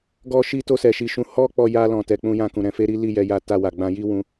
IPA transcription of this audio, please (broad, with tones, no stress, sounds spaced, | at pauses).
ɡ ɔ˦ ʃ i˦ t o˧ s ɛ˨ ʃ i˨ ʃ ũ˨˦ h ɔ˦ k͡p ɔ˧ j a˦ l ɔ̃˧ t ɛ˧ k͡p ũ˧ j ã˧ k ũ˨ ɾ ɛ̃˨˦ f e˦ ɾ i˦ l i˦˨ j ɛ˧ j a˧ t a˧ w a˨ ɡ͡b ã˧ j i˦ w ũ˧